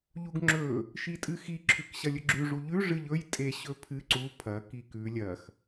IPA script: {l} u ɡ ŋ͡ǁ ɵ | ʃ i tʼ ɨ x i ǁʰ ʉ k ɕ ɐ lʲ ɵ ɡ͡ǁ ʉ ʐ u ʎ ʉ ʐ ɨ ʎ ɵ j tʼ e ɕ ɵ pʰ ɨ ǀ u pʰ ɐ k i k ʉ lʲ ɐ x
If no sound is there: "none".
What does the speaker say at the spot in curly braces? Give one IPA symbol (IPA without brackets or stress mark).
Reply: ʎ